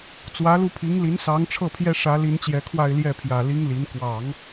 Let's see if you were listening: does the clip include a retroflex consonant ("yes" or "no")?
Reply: yes